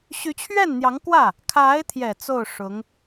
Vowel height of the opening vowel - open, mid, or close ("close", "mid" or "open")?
close